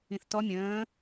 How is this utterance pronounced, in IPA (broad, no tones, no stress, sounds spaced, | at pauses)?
ĩ θ t ɔ mʲ ə̃ː